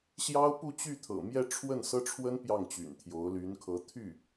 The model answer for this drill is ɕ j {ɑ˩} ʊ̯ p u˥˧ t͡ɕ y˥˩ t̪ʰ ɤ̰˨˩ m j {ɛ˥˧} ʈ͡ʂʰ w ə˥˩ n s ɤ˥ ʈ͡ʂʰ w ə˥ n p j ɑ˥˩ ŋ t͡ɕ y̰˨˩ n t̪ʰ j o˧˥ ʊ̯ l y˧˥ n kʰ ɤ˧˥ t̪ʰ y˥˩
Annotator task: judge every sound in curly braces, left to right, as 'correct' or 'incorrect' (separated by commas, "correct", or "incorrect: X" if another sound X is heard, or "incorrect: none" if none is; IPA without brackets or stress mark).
incorrect: ɑ˥, correct